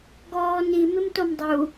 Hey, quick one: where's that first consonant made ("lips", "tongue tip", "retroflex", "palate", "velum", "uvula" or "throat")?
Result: velum